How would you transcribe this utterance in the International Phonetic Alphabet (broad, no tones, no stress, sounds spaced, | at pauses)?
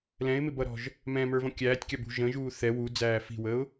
l ɛ̃ ɪ̯ m ɪ b ʌ ɾ ɔ̤ ʒ | m ɛ̃ m ə˞ v ɔ̃ kʲ æː tʲ kʲ ɑ b ṳ ʒ ə̃ ʒ uː θ ɛ w u d͡z æː f i̤ w ə ʊ̯